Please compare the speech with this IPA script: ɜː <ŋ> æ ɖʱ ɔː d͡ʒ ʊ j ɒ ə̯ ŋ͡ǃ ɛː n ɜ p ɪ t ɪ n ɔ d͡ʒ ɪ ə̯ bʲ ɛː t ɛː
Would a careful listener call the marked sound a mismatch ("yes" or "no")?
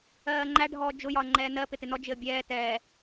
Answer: yes